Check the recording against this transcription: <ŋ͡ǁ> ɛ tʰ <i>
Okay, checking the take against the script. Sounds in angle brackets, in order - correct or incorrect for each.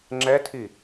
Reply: correct, correct

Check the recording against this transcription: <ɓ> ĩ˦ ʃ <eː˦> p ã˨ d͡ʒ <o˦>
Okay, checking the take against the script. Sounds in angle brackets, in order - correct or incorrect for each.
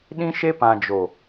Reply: incorrect: ɗ, incorrect: e˦, incorrect: o˨

